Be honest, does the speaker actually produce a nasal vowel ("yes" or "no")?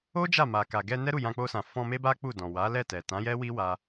yes